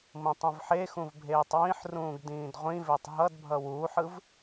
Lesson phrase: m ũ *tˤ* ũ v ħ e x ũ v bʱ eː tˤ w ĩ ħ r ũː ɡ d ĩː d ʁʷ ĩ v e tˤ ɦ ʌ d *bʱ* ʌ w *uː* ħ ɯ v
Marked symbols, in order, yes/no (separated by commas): yes, yes, yes